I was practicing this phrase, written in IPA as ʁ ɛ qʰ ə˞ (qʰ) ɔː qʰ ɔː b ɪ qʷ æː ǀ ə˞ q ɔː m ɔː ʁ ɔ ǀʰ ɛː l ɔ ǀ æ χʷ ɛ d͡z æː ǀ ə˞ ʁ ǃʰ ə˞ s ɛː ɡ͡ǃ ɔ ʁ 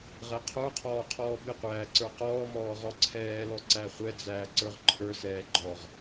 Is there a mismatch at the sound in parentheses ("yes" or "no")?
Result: no